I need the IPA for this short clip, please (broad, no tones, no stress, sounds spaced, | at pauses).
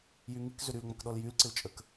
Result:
j y ŋ i k z ʏ ɾ y l ŋ͡m ɐ k ɗ ɔ l j y l ǀ ɪ l t͡ʃʼ ə k